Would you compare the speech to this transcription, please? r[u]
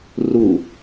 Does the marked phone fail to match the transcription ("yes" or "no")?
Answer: no